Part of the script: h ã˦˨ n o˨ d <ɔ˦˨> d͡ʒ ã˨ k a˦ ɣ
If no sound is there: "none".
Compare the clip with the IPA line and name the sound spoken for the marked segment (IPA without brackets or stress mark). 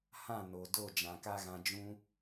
o˦˨